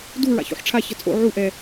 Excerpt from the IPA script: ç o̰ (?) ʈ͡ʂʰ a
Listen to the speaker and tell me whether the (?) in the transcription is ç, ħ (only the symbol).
ħ